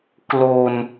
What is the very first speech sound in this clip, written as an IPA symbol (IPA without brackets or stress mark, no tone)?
k